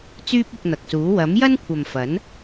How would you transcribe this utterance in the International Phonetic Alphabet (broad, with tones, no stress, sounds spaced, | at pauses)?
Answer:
t͡s yː˥ p̚ ʊ˧ k̚ n̪ ɐ˨ k̚ s uː˨˥ w ɐ˨˥ m j ɐ˥ n kʷʰ ɐ˨ m f ɐ˨˥ n